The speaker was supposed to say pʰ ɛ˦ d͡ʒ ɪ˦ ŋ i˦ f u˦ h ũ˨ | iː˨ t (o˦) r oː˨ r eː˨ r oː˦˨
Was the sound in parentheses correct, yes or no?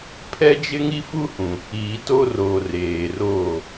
yes